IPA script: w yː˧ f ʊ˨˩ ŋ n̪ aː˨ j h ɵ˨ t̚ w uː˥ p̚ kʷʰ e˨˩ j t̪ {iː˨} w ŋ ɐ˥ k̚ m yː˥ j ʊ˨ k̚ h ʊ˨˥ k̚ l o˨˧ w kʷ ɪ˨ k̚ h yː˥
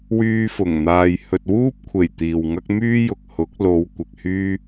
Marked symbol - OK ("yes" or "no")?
yes